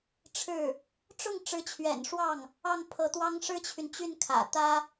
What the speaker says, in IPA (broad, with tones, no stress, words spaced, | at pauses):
ʈ͡ʂʰɻ̩˥˩ | ʈ͡ʂʊ˥˩ŋ ʈ͡ʂɻ̩˧˥t͡ɕʰɥɛ̰˨˩nʂwɑ˥˩ŋ | ɑ˥˩ŋpʰɤ˧˥t̪wɑ˥ŋ ʂɻ̩˥t͡ɕʰy˨nt͡ɕy˥˩nkʰä̰˨˩ t̪ä˥